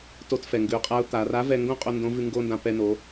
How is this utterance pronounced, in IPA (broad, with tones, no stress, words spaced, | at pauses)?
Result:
to˧tfɛ˩ŋɡʉ˩˧ʊ̯qʼa˧˥ʊ̯ t̪a˩˧ ra˧˥vɛ˧ŋɡõ˥qʼo˧ ndõ˧˥vʉ˧ ŋɡo˥ndã˧ pɛ˧no˩˧